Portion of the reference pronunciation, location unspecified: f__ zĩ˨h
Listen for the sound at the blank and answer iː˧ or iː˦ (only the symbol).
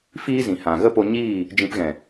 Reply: iː˦